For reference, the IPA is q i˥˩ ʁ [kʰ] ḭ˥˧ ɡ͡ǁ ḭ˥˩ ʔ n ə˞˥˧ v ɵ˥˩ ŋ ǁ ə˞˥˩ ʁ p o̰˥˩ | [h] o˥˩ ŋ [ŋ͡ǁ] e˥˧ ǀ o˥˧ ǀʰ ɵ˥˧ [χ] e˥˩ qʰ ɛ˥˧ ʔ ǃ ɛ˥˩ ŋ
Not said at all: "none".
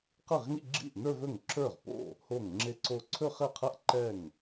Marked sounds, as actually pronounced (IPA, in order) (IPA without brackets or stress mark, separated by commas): ŋ, h, ŋ͡ǁ, χ